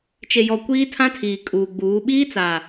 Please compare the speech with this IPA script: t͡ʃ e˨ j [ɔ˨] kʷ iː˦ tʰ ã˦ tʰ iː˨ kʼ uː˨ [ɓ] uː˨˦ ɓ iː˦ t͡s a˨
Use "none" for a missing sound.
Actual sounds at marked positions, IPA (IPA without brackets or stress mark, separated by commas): ɔ˨, ɡ͡b